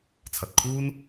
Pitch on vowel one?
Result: low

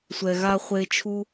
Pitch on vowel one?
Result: low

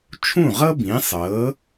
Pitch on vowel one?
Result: falling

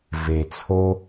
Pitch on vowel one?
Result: low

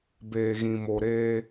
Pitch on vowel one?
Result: low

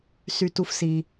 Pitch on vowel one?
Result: high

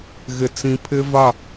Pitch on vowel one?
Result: low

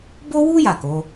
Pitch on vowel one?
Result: high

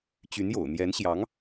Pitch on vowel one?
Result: rising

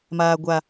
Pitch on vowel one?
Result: low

